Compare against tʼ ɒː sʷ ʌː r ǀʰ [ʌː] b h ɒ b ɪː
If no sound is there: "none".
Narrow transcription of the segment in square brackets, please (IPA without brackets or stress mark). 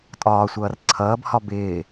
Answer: ʌː